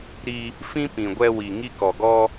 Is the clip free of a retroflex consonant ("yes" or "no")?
yes